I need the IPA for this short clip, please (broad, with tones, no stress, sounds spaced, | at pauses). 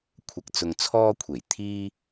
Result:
kʷʰ ɐ˧ k̚ t͡s ʊ˧ ŋ t͡sʰ ɔː˥ kʷʰ e˨˩ j t̪ʰ iː˥